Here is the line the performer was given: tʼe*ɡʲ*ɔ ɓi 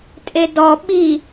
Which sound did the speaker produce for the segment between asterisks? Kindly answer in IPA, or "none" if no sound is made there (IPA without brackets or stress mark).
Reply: d